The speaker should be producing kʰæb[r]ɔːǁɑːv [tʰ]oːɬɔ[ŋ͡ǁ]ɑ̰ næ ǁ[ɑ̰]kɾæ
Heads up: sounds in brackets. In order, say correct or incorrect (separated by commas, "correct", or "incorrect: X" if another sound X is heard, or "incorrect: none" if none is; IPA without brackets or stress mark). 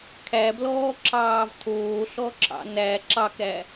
incorrect: l, correct, incorrect: ǁ, incorrect: ɑ